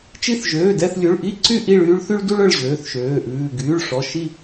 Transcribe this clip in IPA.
t͡ʃi˦˨θʒøː˩˧˩dɛ˦˨θlʲu˩˧˩ɭ ʔi˦˨ǀy˦˨ ʔi˦˨ɭyː˦ɭ θy˦ɭdu˦ɭ œ˦˨ɭʑøː˩˧˩θʃøː˩˧˩ʔʉː˩˧˩ ɡyː˩˧˩ɭʂɔ˩˧˩ʃi˦˨

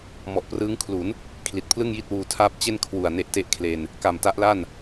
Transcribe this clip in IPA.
mɔ˨˩ʔprɯː˦˥ŋkʰlu˩˦n | kʰli˨˩t̚pʰlɯ˥˩ŋji˥˩t̚ wuː˧tʰaː˥˩p̚ t͡ɕe˥˩nkʰwu˨˩a̯ ne˦˥ʔte˦˥ʔkʰle˧n | ka˨˩mta˦˥ʔla˥˩n

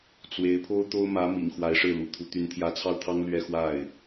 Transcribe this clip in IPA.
t͡swe˧˥ɪ̯ pʰo˥ʊ̯t̪o˥ʊ̯mä˧˥ mḭ˨˩ŋ xwa˧˥ɪ̯ʂɻ̩˥˩lṵ˨˩t̪ʰu˧˥ t̪y˧˥nt̪ʰjä˧˥t͡sʰɑ˥˩ʊ̯t̪ʰɑ˥ŋ lɥɛ˥˧xwa˥˩ɪ̯

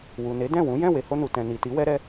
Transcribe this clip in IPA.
wu˨ne˨˦ dɛ̃˦˨wũ˨˦ jɛ̃˦˨we˨ho˧nu˨ tɛ̃˨ni˨ti˨˦ wɛ˦ɾɛ˦

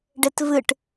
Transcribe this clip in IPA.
ɖetvɨʈ

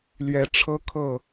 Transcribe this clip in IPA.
lɥɛ˨˦ ʈ͡ʂʰɤ˦kʰɤ˥˨

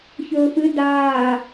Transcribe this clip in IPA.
çɵːfɨ daː

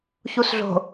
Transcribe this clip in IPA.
çusɮo̤

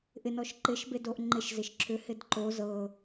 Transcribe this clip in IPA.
ʔɪnɔʃ ǃɪʃbedoʔ ŋ͡ǃɪʃzɪʃ ǁʏhɪd ǃo zɤ

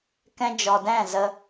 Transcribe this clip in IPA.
kɛ̃˧d͡ʒɔ˨ dɛ̃˦˨zə˧

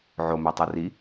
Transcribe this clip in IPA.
ʕomɛtˤɯ ri

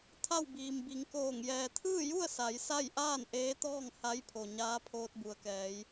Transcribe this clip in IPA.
t̪ʰa˥˨wbiː˩mbi˩˧ŋkoː˧˩ŋ jɛː˩t̪ʰɯː˥˨ju˥˨ə̯ sa˩˧jsa˥˨j ʔaː˥˨n ʔeː˧˥t̪ɔː˥˨ŋ ha˧˥jpʰo˩ ɲaː˧˥pʰoː˧t̚ bu˩˧ə̯kɛː˩˧j

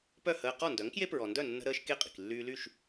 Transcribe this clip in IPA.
pœ˥˩ həː˧ qɔ˥˩ndœ˩˥ŋkje˥ pɹɔ˩ndœ˥˩nːə̤˧ɾəː˧ʃ ke˥˩qʼi̤˩k lːyː˧ly˥˩ʃ

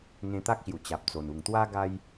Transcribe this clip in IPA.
ŋẽ˧t̪a˦k̚ɕju˨˩ t͡ɕa˨p̚ t͡so˨˩nu˨˩ŋt̪wa˦ ɡa˦j

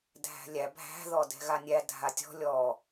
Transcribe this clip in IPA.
dʱæ̤lʲæ bʱæ̤ ðɔdɛ̤ɣanʲæ dʱatʲɔ̤ lʲɔ

